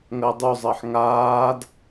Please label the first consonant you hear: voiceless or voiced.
voiced